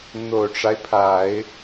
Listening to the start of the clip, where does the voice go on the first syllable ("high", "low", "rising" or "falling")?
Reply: low